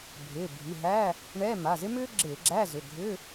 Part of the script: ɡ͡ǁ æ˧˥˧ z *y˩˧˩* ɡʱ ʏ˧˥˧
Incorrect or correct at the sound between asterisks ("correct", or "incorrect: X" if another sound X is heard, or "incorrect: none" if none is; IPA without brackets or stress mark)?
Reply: incorrect: ʏ˩˧˩